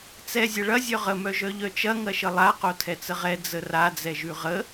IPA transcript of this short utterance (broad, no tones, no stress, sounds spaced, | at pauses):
t͡s ɛ zʲ ɐ ɭ ɐ zʲ œ ʁ ə m œ ʒ œ ʎ œ t͡ʃ ɐ ŋ ɐ ʃ ə lˠ a q o tʰ ɛ t͡s ə ʁ ɛ d͡z ə r a d͡z ɛ ʒ ʉ ʁ ə